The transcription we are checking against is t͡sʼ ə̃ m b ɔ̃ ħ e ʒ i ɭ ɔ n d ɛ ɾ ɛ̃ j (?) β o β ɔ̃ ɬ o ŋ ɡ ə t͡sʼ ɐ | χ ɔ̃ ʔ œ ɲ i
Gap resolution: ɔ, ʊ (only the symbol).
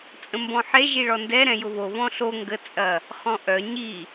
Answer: ʊ